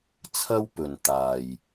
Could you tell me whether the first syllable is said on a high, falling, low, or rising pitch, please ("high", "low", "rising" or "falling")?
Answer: high